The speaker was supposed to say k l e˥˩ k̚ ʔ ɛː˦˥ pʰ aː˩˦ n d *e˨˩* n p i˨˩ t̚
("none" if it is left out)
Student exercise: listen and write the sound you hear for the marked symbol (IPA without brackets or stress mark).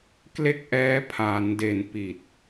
e˨˩